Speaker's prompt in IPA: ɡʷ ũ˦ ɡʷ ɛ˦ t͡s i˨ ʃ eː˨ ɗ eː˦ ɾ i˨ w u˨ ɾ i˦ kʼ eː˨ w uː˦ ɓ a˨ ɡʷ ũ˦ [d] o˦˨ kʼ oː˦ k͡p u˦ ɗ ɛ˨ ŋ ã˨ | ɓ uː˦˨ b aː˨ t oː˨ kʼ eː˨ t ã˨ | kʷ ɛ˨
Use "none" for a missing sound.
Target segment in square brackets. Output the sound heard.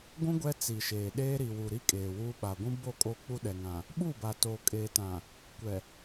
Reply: b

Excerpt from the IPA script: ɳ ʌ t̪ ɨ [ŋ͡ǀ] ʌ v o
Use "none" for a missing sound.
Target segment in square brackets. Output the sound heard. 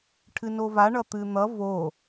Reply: n̪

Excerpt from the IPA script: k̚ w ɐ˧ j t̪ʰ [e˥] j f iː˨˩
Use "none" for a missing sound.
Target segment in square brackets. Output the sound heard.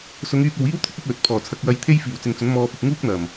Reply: e˥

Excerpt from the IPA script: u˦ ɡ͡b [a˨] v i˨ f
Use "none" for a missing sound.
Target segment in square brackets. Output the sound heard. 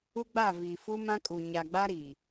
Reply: a˦˨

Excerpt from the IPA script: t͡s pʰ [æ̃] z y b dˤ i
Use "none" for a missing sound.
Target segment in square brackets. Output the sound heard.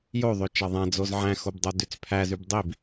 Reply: æ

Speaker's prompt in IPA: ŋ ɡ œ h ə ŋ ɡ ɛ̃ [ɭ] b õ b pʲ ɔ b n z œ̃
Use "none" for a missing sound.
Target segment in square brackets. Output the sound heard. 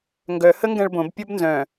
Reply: ɭ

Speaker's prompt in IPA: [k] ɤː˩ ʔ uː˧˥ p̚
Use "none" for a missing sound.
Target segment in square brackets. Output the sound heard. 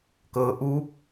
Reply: k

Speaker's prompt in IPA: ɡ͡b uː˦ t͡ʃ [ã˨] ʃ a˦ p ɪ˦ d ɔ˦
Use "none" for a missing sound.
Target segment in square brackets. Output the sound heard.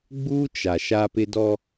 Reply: a˨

